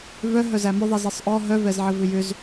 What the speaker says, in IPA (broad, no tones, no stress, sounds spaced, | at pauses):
v œ ɦ œ z æ m ʏ ðˤ i z i sˤ ʔ ɔ ɦ œ v ɛ z ʕ ɘ v ʏ j ʏ z